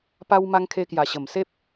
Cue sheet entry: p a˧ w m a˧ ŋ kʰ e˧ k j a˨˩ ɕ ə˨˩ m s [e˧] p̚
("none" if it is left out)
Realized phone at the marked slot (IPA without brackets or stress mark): e˦